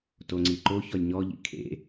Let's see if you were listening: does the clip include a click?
yes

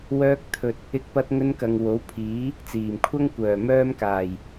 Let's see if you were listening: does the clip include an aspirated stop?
yes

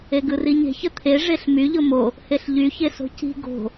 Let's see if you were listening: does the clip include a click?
no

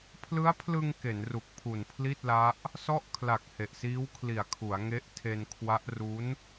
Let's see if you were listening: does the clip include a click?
no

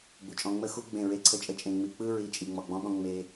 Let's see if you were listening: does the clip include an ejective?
yes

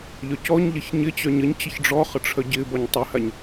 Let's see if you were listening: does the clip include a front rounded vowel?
yes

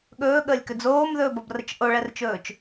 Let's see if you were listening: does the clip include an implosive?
yes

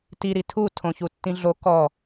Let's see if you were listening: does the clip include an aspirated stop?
yes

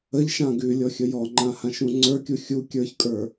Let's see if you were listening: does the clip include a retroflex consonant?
no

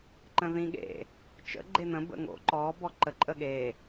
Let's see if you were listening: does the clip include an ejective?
yes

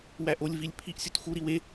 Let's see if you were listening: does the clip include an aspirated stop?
yes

